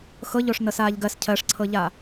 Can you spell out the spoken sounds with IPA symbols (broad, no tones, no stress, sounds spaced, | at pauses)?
x ɤ ʎ o ʂ n ɤ s aː ʎ ɡ ɜ s cʰ ɜ ʂ ǀʰ ɤ ʎ a